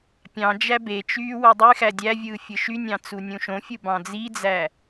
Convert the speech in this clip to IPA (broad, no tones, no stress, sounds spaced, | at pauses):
pʲ ɑ̃ d͡ʒ æ b e t͡ʃ yː w o dˤ y x æ dʲ æ vʲ ɯː fʲ ɯ ʃ y nʲ ɑ̃ t͡s u nʲ ũ ʃ õ fʲ ɯ b ɑ̃ d͡z i d͡z æ